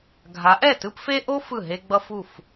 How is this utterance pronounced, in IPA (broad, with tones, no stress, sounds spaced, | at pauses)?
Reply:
ɡʱ a˨˦ ʔ ɛ˦˨ t ɯ˦ p f e˦ ʔ o˦ f ɯ˦˨ ɦ e˦ ɡ͡b ʌ˦ f u˦˨ f